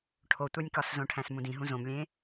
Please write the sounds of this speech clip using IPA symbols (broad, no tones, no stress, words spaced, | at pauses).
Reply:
ʈʰotʷænʲkɒszõ ʈʰæ̃smũdĩɦũ zõmlʲẽ